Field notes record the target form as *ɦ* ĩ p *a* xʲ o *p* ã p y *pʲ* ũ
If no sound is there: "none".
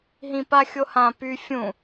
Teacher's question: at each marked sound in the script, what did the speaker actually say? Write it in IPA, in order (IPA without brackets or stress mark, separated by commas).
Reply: ɦ, a, h, fʲ